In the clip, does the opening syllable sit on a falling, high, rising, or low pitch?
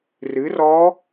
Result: rising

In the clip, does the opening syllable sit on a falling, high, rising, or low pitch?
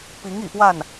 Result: rising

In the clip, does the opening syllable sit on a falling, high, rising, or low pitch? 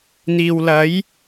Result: low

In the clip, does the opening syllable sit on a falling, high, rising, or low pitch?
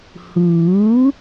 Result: rising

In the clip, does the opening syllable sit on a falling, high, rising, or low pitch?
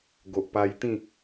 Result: low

